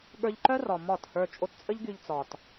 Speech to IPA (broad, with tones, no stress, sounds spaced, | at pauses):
ɠ ə˞˧ ʎ ǃ œ˦ r ɒ˨ m ɒ˦˨ t h ə˞˧ t͡ʃʼ o˧ t t͡sʼ ə˦ ʎ ɡ y˧ ʎ t͡s ɒ˨ t